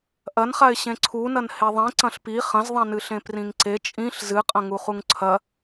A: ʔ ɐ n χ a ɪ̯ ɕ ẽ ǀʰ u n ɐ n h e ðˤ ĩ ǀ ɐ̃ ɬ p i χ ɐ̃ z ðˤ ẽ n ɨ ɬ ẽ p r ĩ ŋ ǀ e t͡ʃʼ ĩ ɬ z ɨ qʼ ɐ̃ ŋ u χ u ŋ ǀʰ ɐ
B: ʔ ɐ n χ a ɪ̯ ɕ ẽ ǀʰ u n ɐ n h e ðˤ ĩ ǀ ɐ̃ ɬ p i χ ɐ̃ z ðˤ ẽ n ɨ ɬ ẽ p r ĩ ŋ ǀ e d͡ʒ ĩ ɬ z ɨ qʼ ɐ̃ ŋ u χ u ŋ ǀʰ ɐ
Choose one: A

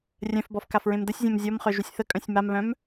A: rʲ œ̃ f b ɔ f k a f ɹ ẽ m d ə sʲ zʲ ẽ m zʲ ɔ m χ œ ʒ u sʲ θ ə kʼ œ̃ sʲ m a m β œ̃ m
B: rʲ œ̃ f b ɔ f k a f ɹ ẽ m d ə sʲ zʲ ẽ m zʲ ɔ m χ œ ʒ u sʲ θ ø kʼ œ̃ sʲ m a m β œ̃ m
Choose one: A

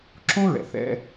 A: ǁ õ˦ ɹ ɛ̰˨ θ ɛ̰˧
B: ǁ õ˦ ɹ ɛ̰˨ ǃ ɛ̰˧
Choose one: A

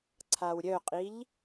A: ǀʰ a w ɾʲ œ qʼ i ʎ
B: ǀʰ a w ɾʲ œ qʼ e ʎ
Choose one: A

